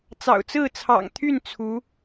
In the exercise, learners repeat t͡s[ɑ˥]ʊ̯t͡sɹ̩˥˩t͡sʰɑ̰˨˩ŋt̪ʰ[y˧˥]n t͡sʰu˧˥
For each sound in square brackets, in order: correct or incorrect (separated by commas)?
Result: incorrect, incorrect